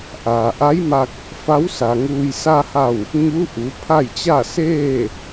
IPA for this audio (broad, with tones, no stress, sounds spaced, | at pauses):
ʔ aː˩ ʔ a˧˥ j m a˧ k̚ | f a˧˥ w s a˩ ŋ uː˧ j s a˧ h a˧˩ w | ɲ u˧˥ ʔ u˩˧ pʰ a˥˨ j t͡ɕ a˥˨ s eː˥˨